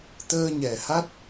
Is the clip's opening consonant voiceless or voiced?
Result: voiceless